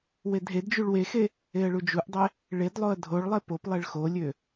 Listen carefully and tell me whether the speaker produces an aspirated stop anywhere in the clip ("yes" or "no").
no